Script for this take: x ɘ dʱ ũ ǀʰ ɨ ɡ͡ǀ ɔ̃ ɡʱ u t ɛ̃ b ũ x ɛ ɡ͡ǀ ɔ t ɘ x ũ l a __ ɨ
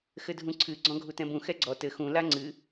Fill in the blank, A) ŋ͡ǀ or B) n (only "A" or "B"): A